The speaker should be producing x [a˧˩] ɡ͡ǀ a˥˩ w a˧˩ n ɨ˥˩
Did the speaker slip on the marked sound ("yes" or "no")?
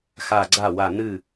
no